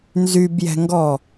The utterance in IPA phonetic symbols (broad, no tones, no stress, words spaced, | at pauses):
nzybjɛ̤ŋɡɔ